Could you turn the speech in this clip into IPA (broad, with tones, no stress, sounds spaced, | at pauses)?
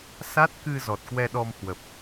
s a˦˥ t̚ k ɨ˧ z ɔ˨˩ t̚ k w ɛ˧ ɗ ɔ˧ m h w ə˨˩ p̚